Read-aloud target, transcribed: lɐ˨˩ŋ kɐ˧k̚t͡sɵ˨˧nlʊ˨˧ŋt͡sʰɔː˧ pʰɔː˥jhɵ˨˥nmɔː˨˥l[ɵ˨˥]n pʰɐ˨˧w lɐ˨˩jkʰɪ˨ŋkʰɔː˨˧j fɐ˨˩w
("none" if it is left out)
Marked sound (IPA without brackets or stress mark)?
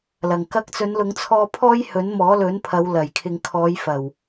ɵ˨˥